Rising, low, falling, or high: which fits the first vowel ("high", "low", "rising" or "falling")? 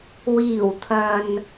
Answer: low